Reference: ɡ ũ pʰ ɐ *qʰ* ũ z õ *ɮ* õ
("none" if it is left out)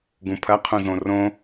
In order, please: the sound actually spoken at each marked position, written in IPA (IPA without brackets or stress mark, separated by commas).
qʰ, r